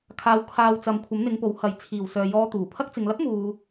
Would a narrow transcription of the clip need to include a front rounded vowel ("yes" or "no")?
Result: yes